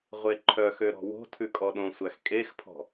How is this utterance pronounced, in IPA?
ʁʷ e ǃʰ œ x ø ɾ ɔ̤ w o̤ tʰ ʉ kʼ ɔ ɗ õ sʷ æ x kʼ e x pʰ ɔ̤

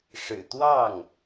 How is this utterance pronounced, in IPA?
ʂ ɻ̩˨˩ t̪ w ɑ˥˩ ŋ

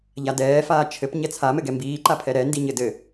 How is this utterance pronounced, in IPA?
ʎ a d ɛː f aː t͡ʃʰ ɘ p ɲ ɛ t͡sʰ a m ɘ ɡ ɛ m b iː ǃ a pʰ ɛ ɾ ɛ n d i ɲ ɘ d ɘ

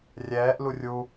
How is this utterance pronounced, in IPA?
rʲ ɛː ʔ l u rʲ u

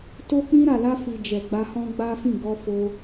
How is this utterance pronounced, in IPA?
t o˧ k͡p ĩ˧ ɾ a˨ l a˧ f i˨ d͡ʒ ɛ˨ ɡ͡b a˧ h ɔ̃˦ ɡ͡b a˦ f ĩ˦˨ ɡ ɔ˧ f o˧

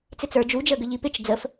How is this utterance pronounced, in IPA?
t͡s ɪ t͡s ə˞ d͡ʒ u d͡ʒ əː ɡ ʏ ʎ i p ɪ t͡ʃ d͡z ə f

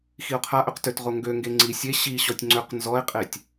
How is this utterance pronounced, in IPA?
x i o̯ qʰ a ʔ ø q t ø t ʁ o ŋ ɡ ø ŋ ɡ e ŋ͡ǀ i sʲ e ɕ i ɕ ɔ tʲ ŋ͡ǀ ø q n z ɔ e̯ qʼ e tʲ

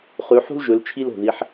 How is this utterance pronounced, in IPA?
χ ʉ˨˦ ħ ṳ˥ l ʒ ɵ˨˦ l t͡ʃʰ i˥ l o̤˨˩ ð i˨˦ ħ

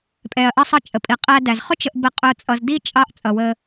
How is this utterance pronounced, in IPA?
pʼ ɛ˩ ɐ̯ ʔ ʌ˨ sˤ ʌ˨ t͡ʃʼ ə˩ pʼ i˩ qʼ æ˨ d æ˩ z χ ʊ˦ t͡ʃ ə˨ ʔ b ə˨ qʼ ʊ˨ t͡sʼ ʌ˨ z d i˥ t͡ʃʼ ɑ˦ ʔ t͡sʼ ʌ˩ w ə˨

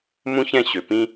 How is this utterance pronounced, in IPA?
m ũ˦ ç ɛ̃˦˨ ɕ ø˨ p ĩ˦

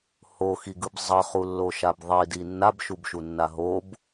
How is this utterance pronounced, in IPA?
h o x i ɡ ɯ b zˤ ʌ χ u lː o ʃ a b ðˤ i d i nː a b ʃ u b ʃ u nː a ɦ o b

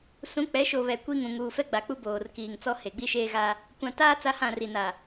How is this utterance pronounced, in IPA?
s ũ˨˦ k͡p ɛ˨˦ ʃ o˨ β ɛ˨ kʷ i˦ ŋ ũ˨ ŋ uː˨ f ɛ˦ ɡ͡b a˨ k͡p u˦ b oː˨ r k iː˨ ŋ t͡s ɔ˦ h e˨ ɡ͡b i˦ ʃ eː˦ ɣ a˦ | kʷ ã˨ t aː˦ t͡s a˦ h ã˦˨ r i˨ n a˨

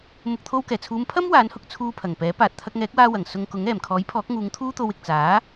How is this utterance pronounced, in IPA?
m ʊ˨ k̚ t̪ʰ o˧ w k ɛː˨˩ t͡sʰ uː˨˧ m pʰ ɐ˥ m w aː˨˥ n h ʊ˧ k̚ t͡sʰ uː˧ pʰ ɐ˨˩ ŋ p ɛː˨˥ p aː˨ t̚ t̪ʰ ɐ˧ k̚ ŋ ɛː˨˥ k̚ w aː˧ w ɐ˨˩ ŋ s ʊ˧ ŋ k ʊ˨˥ ŋ ɛː˨˩ m kʰ ɔː˨˥ j pʰ ɔː˨˥ k̚ ŋ uː˨˧ ŋ t̪ʰ uː˥ t̪ o˧ w ɪ˨ k̚ t͡s aː˨˥

